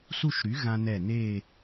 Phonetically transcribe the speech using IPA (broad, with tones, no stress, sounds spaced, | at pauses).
s u˥˧ ʃ ɾ y˩˥ ɣ ã˧ n̪ ɛ˧˩ n eː˥˧